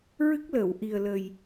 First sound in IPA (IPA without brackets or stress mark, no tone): ɹ